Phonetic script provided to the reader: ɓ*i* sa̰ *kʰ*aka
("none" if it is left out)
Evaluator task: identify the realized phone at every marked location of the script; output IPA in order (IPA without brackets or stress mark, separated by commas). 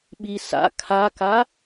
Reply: i, kʰ